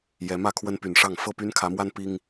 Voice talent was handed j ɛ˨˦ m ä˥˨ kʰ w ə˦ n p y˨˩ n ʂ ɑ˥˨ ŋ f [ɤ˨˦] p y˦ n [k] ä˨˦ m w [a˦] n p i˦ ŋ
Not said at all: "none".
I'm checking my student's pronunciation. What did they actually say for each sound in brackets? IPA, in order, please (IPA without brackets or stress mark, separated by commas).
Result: ɤ˥˨, kʰ, a˦